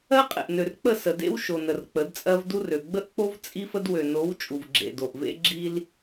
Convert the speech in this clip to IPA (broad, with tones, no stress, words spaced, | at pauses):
ɜ˦qʼḛ˨ʔnø˨r k͡pə˦˨sə˨dḛ˦w ʃo˨nə˨r k͡pə˨˦dt͡sʼɜ˦v du˦rø˨ ɡ͡bə˦ʔk͡po˦v t͡sʼi˦fə˦d wø˨no˨˦w t͡ʃʼu˨vɡ͡ǁḛ˨do˨ʔvḛ˦ ɡ͡ǁi˦l